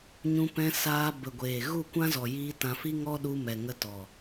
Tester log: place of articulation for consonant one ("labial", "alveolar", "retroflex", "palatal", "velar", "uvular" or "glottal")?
palatal